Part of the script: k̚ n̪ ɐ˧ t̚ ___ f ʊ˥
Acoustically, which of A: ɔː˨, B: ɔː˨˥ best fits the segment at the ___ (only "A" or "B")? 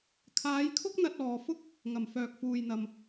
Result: A